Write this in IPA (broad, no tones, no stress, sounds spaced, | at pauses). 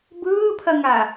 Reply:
b ɯː pʰ ɐ ŋ a